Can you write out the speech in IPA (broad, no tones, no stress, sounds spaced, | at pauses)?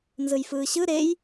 n z ɯ j f ɯː ɕ ɯ ɾ e j